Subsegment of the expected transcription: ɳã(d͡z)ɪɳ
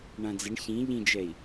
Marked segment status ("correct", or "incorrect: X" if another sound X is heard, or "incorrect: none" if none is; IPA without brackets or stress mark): correct